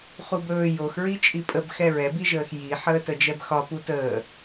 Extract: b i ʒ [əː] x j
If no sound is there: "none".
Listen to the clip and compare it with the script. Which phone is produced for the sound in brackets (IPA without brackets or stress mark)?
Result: əː